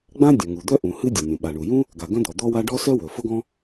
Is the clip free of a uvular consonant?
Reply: yes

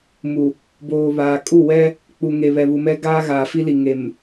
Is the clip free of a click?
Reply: yes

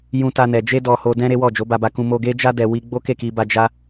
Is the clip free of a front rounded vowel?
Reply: yes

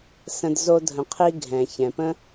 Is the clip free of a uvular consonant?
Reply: no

